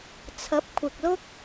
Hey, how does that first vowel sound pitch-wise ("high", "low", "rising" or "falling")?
rising